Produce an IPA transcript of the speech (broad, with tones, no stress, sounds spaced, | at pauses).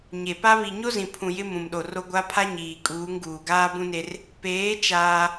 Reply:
ɲ e˨ p a˦ β i˨ ɲ o˦ z ĩ˨ pʰ ũ˨ j ɪ˦ m ũ˨ m ɗ o˨ r o˦ ɡʷ a˦ pʰ a˦ ɲ iː˨ kʼ uː˨˦ ŋ ɡ uː˨ ɡ aː˦ b ũ˦ n e˦ r | p eː˨˦ t͡ʃ aː˦